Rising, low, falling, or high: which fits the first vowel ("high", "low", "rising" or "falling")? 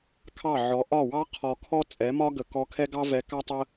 falling